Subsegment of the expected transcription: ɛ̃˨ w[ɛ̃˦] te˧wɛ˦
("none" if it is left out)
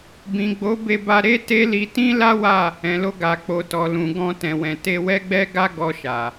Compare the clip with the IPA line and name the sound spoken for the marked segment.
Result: ɛ̃˨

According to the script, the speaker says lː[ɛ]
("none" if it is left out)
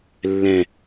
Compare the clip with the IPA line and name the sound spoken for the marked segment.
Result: ɛ̃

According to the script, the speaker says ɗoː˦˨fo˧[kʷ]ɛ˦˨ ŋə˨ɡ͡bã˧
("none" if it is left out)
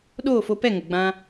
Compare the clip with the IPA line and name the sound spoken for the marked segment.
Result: p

